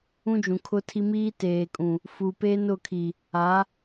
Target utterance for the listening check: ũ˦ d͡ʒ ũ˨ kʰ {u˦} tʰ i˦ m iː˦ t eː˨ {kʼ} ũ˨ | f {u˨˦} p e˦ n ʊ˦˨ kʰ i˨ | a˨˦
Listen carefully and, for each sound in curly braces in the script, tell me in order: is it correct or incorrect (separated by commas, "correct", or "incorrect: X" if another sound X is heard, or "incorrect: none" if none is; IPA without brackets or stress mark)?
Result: incorrect: ʊ˦, correct, incorrect: u˨